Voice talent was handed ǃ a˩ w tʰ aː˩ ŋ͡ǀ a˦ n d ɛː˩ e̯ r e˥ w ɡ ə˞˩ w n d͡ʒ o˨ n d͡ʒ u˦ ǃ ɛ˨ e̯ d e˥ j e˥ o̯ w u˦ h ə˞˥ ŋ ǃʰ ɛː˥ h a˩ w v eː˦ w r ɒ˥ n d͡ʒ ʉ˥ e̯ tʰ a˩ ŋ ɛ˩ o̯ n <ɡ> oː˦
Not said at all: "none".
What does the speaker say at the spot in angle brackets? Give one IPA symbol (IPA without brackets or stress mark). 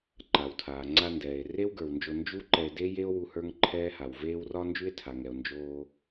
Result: d͡ʒ